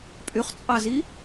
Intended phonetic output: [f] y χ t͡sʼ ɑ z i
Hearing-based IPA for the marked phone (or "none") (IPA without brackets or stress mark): pʼ